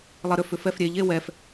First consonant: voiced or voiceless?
voiced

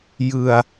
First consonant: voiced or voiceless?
voiced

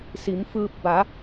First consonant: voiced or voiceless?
voiceless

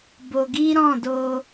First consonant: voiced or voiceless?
voiced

